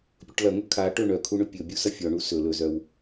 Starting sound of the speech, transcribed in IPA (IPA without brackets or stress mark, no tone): pʲ